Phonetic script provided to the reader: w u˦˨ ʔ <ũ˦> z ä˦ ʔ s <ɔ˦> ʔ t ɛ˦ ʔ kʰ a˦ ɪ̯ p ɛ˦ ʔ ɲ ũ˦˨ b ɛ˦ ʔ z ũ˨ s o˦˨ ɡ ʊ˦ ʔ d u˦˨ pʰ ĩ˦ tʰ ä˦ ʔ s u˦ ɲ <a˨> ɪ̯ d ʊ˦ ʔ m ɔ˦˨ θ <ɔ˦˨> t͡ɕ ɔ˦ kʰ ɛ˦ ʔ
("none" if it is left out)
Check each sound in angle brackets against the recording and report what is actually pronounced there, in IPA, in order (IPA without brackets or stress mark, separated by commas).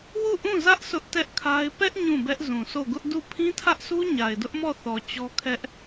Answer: ũ˦˨, ʊ˦, a˨, ɔ˨